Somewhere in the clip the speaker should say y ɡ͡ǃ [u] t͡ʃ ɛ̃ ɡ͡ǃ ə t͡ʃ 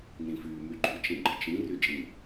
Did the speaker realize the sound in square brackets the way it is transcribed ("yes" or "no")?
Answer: no